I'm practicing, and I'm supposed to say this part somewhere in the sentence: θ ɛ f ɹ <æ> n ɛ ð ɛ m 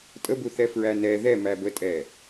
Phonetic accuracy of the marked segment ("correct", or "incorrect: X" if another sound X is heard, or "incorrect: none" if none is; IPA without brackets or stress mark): correct